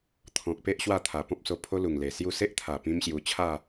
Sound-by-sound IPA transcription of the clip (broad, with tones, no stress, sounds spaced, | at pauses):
t̪ʰ ɔ̃˨ k̚ p e˦ ʔ ɕ w a˥˧ t̪ʰ a˨˩ p ɔ̃˦ p̚ s o˧ pʰ o˦ l u˨˩ ŋ l e˨˩ s j u˥˧ s e˦ ʔ t̪ʰ a˨˩ p ĩ˦ m ɕ j u˧ t͡ɕʰ a˥˧